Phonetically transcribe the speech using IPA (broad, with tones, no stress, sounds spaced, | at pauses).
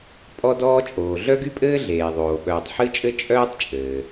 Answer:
pʼ ɔ˥ d ɔː˥ t͡ʃʼ oː˩ ɮ œ˥ ɡ y˥ pʼ ɘː˥ ɮ eː˩ ðˤ oː˩ ɓ œː˩ tˤ ħ ɨ˥ t͡ʃʼ ɘ˥ t͡ʃʼ œː˥ tˤ t͡ʃʼ ɘː˩